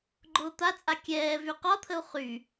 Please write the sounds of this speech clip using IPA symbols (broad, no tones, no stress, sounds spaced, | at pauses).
ɡ͡ǃ ʊː t̪ a t͡sʼ a kʲ ɛː v y q ɒ t̪ʰ ə u̯ χ y